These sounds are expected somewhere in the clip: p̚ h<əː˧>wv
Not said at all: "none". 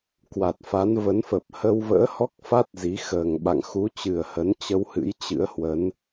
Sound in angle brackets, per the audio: ə˧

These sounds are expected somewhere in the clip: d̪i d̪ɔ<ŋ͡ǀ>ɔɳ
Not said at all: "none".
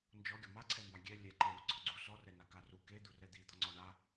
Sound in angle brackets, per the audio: ŋ͡ǀ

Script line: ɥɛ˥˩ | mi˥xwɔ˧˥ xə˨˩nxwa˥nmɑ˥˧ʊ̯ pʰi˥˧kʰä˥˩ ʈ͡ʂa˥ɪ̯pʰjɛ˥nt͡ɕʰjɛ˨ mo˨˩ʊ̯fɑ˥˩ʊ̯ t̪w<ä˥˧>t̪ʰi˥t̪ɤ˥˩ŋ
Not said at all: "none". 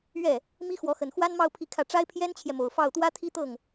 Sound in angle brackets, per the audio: ä˥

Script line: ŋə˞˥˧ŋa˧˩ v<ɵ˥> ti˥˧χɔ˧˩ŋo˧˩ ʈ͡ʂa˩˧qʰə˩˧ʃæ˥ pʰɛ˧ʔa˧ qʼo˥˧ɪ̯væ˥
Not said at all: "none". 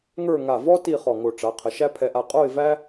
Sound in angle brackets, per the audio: ɔ˥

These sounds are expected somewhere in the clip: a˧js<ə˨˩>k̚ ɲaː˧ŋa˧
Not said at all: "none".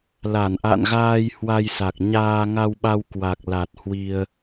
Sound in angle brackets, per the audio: a˨˩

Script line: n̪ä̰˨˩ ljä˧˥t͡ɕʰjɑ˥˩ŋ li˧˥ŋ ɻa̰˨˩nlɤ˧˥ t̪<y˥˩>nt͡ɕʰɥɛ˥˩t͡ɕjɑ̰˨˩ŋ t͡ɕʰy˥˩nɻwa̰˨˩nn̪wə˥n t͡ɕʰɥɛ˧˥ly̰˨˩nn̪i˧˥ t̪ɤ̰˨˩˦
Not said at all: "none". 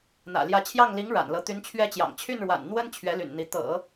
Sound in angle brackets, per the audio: y˧˥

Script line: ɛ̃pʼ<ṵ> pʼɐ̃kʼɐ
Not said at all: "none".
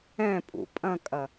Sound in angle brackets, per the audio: ṵ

